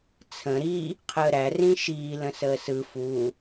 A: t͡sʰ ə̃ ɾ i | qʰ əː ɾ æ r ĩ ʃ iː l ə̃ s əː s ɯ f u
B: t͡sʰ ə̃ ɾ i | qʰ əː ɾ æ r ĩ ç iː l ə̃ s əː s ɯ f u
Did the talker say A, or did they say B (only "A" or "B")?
A